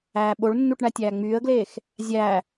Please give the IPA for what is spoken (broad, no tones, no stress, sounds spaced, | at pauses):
æː ɓ o ɭ nː u ʈ ɳ æ tʲ æː ŋ͡m yː ə̯ ɡ l eː x | zʲ æ